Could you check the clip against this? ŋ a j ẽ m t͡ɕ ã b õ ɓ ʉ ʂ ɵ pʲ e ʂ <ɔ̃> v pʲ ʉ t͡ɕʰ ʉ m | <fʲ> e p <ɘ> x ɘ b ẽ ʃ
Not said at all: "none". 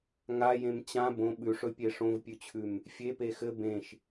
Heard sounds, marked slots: õ, fʲ, e

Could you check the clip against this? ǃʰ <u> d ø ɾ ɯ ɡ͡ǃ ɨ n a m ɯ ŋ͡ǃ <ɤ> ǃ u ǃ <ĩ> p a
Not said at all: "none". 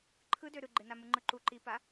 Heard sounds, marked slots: ɯ, ɯ, i

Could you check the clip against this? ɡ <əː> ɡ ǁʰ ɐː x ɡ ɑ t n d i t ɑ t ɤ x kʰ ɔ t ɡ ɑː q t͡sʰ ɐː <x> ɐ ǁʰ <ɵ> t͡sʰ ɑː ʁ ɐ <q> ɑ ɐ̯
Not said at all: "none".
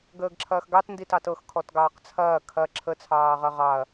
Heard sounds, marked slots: əː, kʰ, ə, ʁ

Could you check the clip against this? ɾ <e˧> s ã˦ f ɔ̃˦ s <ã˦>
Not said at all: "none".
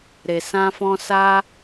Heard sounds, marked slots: e˧, a˦

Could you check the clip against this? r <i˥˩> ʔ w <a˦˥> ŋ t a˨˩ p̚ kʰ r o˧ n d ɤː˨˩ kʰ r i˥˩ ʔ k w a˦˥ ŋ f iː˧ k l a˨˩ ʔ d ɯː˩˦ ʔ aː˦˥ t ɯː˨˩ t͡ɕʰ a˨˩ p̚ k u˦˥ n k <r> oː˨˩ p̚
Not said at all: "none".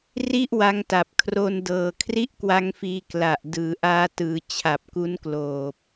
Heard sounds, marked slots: i˥˩, a˦˥, l

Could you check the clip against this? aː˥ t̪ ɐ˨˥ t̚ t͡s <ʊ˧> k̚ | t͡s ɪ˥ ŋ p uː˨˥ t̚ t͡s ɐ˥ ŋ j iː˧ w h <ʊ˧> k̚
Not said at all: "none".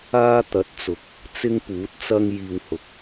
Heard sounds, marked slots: ʊ˨, ʊ˨

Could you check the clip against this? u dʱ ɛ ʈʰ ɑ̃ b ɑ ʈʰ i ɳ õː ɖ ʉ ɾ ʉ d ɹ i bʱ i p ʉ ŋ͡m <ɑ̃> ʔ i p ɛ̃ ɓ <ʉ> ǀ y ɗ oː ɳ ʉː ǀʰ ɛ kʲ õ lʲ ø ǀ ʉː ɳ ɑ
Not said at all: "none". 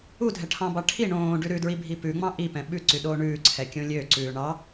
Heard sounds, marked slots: ɑ̃, ʉ

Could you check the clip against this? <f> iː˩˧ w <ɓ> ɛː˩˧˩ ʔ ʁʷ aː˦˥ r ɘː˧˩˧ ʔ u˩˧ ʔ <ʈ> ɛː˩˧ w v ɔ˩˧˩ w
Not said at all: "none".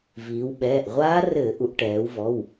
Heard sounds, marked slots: v, ɓ, ʈ

